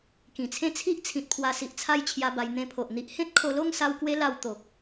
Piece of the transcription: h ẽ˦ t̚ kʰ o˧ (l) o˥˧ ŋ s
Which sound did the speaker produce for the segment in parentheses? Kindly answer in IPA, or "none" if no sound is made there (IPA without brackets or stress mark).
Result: l